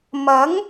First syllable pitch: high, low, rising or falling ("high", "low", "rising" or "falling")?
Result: rising